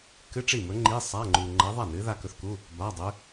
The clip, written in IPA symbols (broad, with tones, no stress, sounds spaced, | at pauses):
k ɨ˧˥˧ ʈ͡ʂ i˥˩ m ɵ˧˥ ŋ͡ǃ i˧˥˧ sˤ a˧˥˧ ŋ͡ǃ u˧ ŋ͡ǃ ɐ˧˥ ðˤ a˥˩ n ɨ˧˥ ð a˧ k ɵ˧ θ k u˧˥˧ | b a˧˥˧ dˤ ʉ˧˥